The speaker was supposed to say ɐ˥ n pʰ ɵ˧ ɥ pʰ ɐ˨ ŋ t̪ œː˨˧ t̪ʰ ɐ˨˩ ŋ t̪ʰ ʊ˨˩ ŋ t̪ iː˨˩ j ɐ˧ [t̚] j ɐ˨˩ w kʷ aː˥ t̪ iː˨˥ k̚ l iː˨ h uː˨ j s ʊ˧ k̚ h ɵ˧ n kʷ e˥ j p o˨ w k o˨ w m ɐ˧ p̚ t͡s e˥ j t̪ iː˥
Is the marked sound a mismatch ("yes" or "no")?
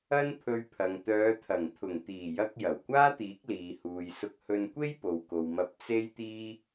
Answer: yes